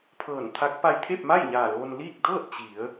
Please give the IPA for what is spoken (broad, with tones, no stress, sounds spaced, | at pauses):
pʰ ɤː˧˩ n t̪ʰ a˧˥ k̚ p a˧ j t̪ʰ e˥˨ p̚ m a˥˨ j ɲ aː˧˩ l oː˧ n l iː˥˨ k̚ d ɤː˥˨ t̚ t͡ɕ i˩˧ ə̯